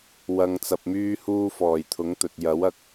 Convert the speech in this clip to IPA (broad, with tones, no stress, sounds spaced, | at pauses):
w ɐ˨ ŋ t͡s ɐ˨ p̚ m yː˧ h uː˧ f ɔː˨˩ j t̪ʰ ʊ˨˥ ŋ t̪ ɵ˨ t̚ j ɐ˨˥ w ɐ˧ k̚